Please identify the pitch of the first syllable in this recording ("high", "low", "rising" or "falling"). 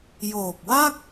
low